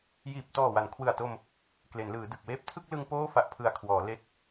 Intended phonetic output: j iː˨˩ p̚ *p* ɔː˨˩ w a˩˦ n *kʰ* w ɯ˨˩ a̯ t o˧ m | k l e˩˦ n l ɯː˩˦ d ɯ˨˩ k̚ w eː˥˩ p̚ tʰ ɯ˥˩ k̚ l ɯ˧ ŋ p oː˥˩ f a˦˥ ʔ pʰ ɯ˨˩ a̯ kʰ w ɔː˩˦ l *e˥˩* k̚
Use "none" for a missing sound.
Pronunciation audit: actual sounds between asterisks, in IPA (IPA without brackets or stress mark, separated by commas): t, kʰ, e˦˥